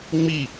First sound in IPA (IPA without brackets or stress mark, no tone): ŋ͡m